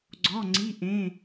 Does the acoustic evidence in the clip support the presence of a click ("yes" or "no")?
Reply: yes